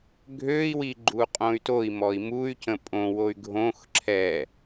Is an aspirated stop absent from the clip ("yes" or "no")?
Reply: no